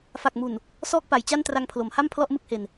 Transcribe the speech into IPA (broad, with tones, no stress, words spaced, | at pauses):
fa˨˩k̚mu˨˩n | sɔː˥˩k̚pa˩˦jt͡ɕa˥˩n tra˧ŋpʰlo˩˦mha˥˩m pʰlɔ˥˩ʔmɯ˥˩k̚he˧n